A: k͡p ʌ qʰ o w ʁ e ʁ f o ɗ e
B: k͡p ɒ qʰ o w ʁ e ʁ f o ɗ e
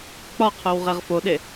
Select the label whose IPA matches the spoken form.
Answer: B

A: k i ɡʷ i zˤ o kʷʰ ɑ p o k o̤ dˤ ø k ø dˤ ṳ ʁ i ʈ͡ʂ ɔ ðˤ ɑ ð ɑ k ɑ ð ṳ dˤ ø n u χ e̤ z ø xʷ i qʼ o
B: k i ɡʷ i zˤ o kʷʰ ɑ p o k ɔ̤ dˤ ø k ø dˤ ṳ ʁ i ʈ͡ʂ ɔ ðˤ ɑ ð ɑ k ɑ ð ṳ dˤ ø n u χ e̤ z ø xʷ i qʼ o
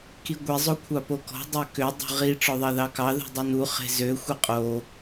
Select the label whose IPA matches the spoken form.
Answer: B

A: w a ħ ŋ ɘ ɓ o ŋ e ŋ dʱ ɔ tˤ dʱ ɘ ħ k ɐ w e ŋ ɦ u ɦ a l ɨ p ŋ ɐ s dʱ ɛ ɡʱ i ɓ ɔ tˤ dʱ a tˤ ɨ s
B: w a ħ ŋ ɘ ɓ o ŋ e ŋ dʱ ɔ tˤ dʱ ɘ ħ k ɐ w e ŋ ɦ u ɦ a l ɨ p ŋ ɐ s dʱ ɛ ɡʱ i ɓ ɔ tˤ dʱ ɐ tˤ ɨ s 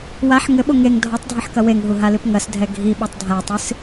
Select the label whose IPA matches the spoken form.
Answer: A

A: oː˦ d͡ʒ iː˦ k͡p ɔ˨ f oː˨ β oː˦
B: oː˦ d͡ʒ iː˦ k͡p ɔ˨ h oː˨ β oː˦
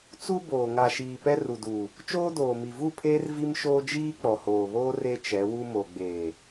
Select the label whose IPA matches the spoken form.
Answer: B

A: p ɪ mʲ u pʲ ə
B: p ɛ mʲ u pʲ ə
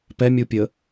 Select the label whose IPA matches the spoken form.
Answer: B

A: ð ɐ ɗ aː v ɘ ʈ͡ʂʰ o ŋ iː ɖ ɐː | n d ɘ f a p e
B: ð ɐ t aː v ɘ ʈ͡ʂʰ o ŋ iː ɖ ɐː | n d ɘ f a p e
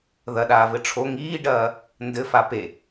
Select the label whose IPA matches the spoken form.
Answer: A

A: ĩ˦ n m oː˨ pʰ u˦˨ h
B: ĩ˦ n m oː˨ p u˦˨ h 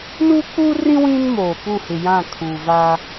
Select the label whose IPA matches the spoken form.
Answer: B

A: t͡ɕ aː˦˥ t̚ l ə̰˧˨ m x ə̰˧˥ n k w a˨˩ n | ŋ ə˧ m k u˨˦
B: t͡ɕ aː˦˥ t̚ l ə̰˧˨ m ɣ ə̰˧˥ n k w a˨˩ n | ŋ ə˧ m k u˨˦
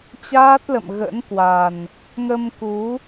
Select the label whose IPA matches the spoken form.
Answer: B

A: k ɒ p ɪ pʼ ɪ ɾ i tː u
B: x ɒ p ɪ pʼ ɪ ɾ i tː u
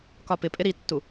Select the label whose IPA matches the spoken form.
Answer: A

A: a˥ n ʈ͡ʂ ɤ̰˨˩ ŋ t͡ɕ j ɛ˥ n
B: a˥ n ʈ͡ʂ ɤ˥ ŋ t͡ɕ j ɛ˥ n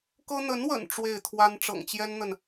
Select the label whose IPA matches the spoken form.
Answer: A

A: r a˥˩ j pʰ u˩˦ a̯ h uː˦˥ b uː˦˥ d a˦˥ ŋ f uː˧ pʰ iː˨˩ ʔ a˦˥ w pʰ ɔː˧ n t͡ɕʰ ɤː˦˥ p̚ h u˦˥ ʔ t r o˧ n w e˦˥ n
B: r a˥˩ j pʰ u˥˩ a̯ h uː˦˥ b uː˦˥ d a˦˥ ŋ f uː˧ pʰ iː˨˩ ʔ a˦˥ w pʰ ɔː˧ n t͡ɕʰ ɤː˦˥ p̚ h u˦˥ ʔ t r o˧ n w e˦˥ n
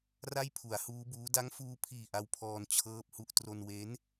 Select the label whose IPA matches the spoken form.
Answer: A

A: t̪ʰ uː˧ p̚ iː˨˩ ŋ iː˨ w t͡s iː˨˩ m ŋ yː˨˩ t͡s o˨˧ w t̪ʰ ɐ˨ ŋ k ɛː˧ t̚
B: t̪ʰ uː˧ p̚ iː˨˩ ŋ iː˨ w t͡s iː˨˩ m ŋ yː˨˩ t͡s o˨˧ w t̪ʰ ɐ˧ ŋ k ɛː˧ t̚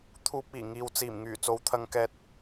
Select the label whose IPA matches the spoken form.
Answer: B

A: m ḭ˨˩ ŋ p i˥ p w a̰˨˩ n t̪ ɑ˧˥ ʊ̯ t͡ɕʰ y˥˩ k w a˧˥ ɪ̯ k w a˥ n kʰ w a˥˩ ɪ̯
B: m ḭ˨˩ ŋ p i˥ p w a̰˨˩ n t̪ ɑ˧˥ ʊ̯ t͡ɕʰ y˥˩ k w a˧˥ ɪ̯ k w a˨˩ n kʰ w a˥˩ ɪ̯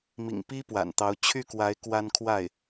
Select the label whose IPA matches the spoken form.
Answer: A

